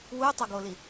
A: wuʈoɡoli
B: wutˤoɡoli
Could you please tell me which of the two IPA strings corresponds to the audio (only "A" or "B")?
B